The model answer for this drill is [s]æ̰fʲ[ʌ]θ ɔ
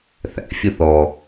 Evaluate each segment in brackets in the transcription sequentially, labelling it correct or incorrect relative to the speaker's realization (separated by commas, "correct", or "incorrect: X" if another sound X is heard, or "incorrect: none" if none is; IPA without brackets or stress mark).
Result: incorrect: θ, correct